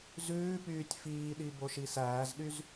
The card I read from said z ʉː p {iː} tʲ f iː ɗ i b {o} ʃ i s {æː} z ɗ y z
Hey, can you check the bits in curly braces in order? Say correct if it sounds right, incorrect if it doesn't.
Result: incorrect, correct, correct

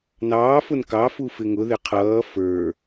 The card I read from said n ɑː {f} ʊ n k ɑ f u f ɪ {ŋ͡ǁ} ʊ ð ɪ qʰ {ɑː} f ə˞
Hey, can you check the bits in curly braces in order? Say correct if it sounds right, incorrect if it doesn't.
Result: correct, incorrect, incorrect

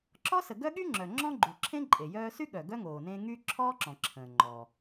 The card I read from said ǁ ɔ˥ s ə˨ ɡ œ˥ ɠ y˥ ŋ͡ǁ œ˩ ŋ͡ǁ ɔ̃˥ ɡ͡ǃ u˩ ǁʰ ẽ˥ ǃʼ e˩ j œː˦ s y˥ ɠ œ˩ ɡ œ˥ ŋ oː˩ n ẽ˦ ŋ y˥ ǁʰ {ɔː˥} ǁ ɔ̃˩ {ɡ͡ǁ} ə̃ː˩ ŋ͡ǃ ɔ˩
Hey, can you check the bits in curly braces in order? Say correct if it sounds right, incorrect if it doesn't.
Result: correct, incorrect

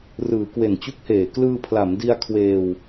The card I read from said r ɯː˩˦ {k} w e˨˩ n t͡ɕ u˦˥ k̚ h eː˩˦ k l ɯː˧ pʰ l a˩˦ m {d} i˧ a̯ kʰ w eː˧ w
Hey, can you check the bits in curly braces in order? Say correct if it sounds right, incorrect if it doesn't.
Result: correct, correct

